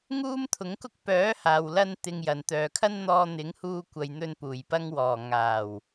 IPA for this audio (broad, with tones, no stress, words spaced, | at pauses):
ŋuː˥mt̪ʰʊ˨˥ŋkʊ˥k̚ pœː˨˥haː˨wlɐ˧n t̪ɪ˧ŋjɐ˨n t̪œː˨kʰɐ˥nn̪ɔː˧ n̪ɪ˨˥ŋhuː˧kʷɐ˨j n̪ɵ˧npuː˨˩jpɐ˧ŋwɔː˨˩ ŋaː˨˩w